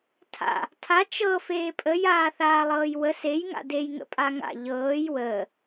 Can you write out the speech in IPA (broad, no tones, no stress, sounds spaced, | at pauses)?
tʰ a̰ | tʰ a t͡ʃ ɤ f eː pʼ ə j aː θ aː lˠ ɤː j w ə s e j ŋ a̰ d e j ŋ ə̰ pʼ a ŋ a̰ ʎ ɤː j w əː